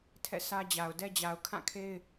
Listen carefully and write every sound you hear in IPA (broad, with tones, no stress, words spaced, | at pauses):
tʰɛ̰˦˨sʰä˦d͡ʑa˨ʊ̯ dɛ˦d͡ʑa˨ʊ̯ kʰã˦˨kʰe˦ɪ̯